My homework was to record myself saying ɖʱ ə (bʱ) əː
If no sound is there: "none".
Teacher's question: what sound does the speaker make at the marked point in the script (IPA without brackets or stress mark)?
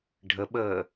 ɓ